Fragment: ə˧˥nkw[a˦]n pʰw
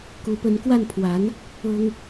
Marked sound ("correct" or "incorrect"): incorrect